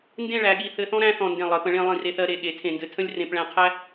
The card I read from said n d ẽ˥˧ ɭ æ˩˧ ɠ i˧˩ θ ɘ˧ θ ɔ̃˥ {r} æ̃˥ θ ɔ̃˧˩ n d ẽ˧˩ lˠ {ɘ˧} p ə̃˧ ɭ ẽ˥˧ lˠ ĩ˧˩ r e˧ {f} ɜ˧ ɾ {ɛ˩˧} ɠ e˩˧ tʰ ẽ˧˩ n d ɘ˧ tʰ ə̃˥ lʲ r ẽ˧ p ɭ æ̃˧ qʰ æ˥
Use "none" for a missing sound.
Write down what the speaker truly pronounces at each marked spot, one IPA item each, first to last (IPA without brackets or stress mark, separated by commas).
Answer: ɾ, ɘ˩˧, θ, e˩˧